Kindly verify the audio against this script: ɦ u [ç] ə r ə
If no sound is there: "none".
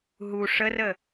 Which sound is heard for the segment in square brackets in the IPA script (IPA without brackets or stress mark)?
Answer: ʂ